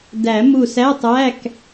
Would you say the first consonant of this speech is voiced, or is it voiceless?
voiced